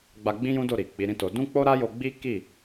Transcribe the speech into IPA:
ɡ͡b a˧ ɡ͡b ĩ˦ j ũ˦ d o˦˨ ɾ i˨ k͡p i˨˦ ɾ ĩ˦ t o˧ d ũ˦ k͡p o˦ ɾ a˦ j o˧ ɡ͡b i˦ k i˦˨

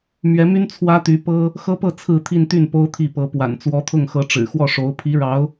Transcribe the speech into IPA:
m ɥ ɛ˧˥ m y˥ n t͡sʰ w ä˥ t̪ y˧˥ p ɤ˥ | x ɤ˥ p ɤ˥˧ t͡sʰ ɹ̩˥˧ t̪ʰ i˥˧ n t̪ y˥˩ n p o˥ ʊ̯ t̪ʰ i˥˩ p ɤ˧˥ p w a̰˨˩ n t͡s w ɔ˧˥ t̪ʰ ʊ˥˩ ŋ x ɤ˧˥ ʈ͡ʂ ɻ̩˨˩ x w ɔ˥˩ ʂ o˧˥ ʊ̯ pʰ i˧˥ ɻ ɑ˧˥ ʊ̯

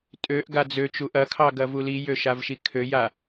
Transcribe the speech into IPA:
tʼ ø ʔ ɡ a d͡z ø t͡ʃ u ʔ ɐ kʰ ɑ ɡ ɐ v u l i j ø ʃ a v ʃ i kʰ ø j a

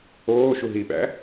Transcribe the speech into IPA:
oː ʃ u ɦ i ɓ æ̰

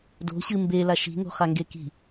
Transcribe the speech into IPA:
d o̤ ɕ ɨ m b e l a ʃ i̤ ŋ o̤ χ a ŋ ɡ e k i̤

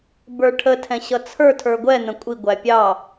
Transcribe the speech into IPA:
b ə˞ ʈʰ ə tʰ ɛ̃ ɕ ʌ t͡sʰ ə˞ tʰ ə˞ ɡʷ ɛ n̪ ə̃ kʷʼ i ɡʷ æ pʲ ɑ

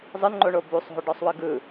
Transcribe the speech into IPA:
zˤ ɯ n ŋ͡ǃ o ɳ o b u sˤ ɦ o ɖ ɔ sˤ w ɯ ɡ ɯ

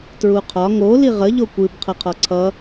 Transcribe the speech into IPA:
t ɹ u qʰ ɒ ŋ o l i ʁ ə ʎ o kʷ ɨ b qʰ ʌ qʰ ɒ ǀʰ ʌ

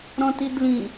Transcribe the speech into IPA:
ɾ ɔ̃ t i d l ĩ

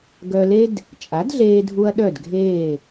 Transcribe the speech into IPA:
ɡ œ˧ l e˥ d | t͡ʃʼ a˩˥ d ɮ eː˧ dʱ u˧ ɐ̯ ɗ œ˥˩ d ɡʱ eː˥˩

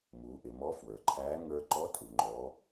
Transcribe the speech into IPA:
m u˩˧ ʔ ɪ˩˧ m ɔ˧˥ f w ə˞˩ ǃʰ æː˧˥ ŋ ə˞˧ ǃ ɔ˧˥ tʼ u˩ ŋ͡ǃ ɔ˩˧

